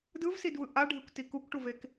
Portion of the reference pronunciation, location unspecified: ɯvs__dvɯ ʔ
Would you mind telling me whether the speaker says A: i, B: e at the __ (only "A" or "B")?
A